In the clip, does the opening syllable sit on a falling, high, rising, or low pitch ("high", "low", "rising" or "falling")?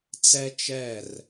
high